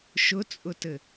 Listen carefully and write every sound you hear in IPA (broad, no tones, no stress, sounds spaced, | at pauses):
ʃ ʊ t͡sʼ ʊ t ɘ